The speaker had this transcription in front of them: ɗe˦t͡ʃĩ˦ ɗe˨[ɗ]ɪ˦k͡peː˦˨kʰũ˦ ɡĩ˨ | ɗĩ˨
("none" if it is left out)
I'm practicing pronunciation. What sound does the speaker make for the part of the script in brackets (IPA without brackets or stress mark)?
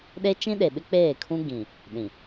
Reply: ɓ